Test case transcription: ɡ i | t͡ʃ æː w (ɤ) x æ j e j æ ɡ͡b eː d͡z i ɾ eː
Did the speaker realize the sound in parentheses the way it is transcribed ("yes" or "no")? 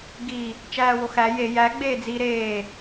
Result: no